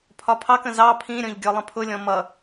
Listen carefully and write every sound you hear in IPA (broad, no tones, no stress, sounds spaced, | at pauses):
pʰ ɒ pʰ ɑ k ə̃ z ɑ pʰ ĩ ɾʲ ɔ̃ ʎ ɡʲ ɔ lˠ ə̃ pʰ ʊ lʲ ɔ̃ m ʌ